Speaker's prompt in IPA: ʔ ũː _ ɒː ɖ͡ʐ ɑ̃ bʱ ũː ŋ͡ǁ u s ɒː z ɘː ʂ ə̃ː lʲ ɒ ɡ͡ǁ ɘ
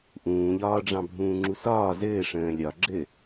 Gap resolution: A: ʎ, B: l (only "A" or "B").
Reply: A